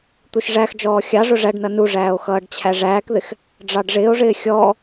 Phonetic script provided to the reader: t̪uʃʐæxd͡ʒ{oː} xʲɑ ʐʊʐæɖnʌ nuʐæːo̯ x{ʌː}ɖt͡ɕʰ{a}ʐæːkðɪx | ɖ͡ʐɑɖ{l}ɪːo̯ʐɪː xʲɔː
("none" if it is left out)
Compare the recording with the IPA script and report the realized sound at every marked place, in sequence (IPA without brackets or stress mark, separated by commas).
ɔː, ʌː, æ, ʐ